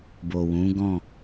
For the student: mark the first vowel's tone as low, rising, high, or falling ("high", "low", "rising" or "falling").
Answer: low